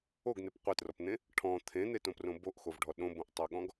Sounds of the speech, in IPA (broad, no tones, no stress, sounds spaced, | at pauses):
o ɡ n̪ e p qʷ e t r ɔ p n̪ ẽ | ʈʰ ɔ̃ t̪ʰ ẽ n̪ e t õ p r õ b o ʔ x o v ɖʱ ɔ ɗ õ b õ ʔ tˤ o ɠ ɔ̃ ɡ